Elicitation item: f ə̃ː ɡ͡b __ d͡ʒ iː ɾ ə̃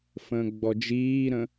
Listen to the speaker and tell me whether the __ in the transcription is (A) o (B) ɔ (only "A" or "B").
B